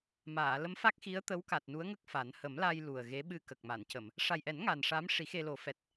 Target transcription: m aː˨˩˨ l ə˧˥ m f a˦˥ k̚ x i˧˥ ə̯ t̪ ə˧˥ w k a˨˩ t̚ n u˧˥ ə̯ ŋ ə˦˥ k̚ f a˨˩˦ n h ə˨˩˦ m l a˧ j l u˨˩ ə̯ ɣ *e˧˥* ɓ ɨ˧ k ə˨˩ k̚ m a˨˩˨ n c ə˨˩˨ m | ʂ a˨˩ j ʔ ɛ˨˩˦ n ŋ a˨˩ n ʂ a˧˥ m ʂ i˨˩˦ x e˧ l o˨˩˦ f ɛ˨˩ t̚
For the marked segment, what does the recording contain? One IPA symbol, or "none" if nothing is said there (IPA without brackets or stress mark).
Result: e˧˥